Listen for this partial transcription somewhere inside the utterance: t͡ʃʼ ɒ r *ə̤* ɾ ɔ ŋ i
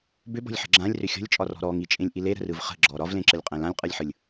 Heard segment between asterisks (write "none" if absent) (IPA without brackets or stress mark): ɔ̤